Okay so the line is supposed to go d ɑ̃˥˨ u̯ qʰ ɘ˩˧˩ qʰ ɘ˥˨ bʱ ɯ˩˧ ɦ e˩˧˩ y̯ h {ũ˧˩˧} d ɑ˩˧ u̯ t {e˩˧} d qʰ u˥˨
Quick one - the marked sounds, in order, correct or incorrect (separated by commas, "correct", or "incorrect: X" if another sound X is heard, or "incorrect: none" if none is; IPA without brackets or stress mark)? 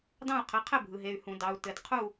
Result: correct, incorrect: ɘ˩˧